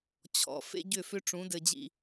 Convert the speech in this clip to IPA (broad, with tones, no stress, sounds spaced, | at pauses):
t͡ɕʰ ɔ̰˨ f ḛ˦ ɟ ʏ˦˨ f ʏ˦ ʈ͡ʂ ũ˨˦ d ɘ˨ d͡ʑ ḭ˨